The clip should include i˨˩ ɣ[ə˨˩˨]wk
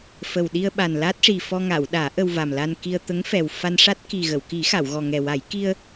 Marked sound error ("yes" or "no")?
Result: no